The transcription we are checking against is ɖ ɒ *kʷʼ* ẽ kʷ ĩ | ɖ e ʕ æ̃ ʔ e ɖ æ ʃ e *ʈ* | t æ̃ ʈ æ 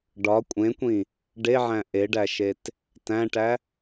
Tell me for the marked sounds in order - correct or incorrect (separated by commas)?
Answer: correct, incorrect